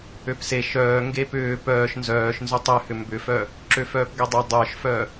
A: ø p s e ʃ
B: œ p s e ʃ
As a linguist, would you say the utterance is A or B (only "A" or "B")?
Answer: A